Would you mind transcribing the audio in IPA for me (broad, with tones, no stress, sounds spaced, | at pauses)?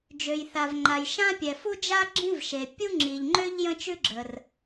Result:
d͡ʒ ø˩ j θ a˩ v ŋ͡ǃ a˩ j ʃ ã˥ pʲ ɛ˩ f u˥ d͡ʒ a˥ ɡ͡ǁ ĩ˥ v ʃ e˩ pʲ u˥ ŋ͡ǁ i˩ ʎ ŋ͡ǃ ø˥ ʎ j ə̃˥ t͡ʃ ʉ˥ ɡ͡ǁ ə˩ r